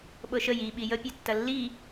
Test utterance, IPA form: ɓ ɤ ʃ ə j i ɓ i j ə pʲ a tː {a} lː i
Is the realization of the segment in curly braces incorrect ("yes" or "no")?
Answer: yes